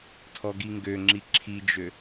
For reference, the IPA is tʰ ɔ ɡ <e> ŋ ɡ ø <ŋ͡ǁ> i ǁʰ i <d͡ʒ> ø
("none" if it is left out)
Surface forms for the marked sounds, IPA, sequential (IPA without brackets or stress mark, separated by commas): i, ŋ͡ǁ, d͡ʒ